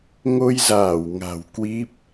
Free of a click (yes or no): yes